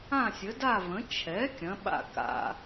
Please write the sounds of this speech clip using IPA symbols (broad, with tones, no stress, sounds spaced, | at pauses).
ã˥˨ sʲ ə˩˥ d a˥˨ v ə̃˩˥ t͡ʃʰ ɛ˩˥ kʲ ɐ̃˩˥ ɓ a̰˥˨ k a̰˥˨